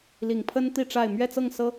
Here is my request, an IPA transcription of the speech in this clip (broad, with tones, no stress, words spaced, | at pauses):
li˨˩ŋpʰə˦n t̪i˥˨ʈ͡ʂa˥˨ɪ̯ mɥɛ˥˨t͡sɤ˥˨ŋsɤ˦